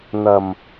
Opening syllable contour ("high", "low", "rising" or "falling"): low